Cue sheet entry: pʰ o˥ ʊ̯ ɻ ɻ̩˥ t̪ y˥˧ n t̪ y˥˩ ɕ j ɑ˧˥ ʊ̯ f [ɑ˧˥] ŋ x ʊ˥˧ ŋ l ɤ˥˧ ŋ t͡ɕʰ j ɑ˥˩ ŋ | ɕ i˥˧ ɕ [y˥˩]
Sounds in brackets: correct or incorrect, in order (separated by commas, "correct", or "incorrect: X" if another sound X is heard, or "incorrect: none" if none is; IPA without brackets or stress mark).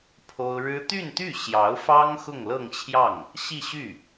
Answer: incorrect: ɑ˥, correct